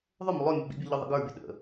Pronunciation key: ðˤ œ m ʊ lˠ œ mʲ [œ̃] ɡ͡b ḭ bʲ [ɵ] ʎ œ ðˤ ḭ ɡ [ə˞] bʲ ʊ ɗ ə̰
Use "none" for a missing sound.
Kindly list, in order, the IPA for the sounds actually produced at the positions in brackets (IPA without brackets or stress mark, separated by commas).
œ, ɵ, ə˞